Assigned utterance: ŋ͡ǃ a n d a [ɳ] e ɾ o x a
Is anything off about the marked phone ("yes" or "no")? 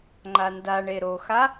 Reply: no